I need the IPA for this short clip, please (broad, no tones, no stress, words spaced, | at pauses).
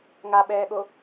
ŋaɓɛːɠo